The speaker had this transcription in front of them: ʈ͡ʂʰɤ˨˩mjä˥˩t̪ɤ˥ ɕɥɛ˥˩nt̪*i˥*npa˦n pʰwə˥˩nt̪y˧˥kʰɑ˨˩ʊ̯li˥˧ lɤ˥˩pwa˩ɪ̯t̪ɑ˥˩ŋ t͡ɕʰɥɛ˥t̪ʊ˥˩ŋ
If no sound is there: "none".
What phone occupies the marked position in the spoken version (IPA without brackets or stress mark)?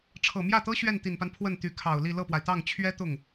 i˨˩